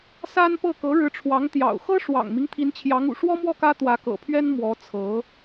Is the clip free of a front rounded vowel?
yes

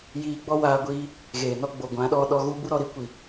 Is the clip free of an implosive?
no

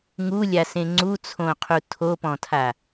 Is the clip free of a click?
no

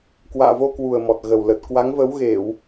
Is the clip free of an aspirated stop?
yes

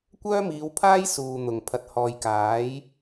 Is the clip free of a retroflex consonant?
yes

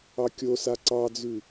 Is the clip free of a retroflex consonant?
yes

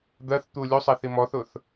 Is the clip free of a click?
yes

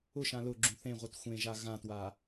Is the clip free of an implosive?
yes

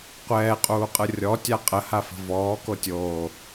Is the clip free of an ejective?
no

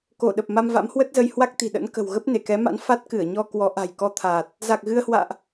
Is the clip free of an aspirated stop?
no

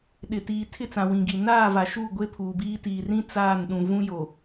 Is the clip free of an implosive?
no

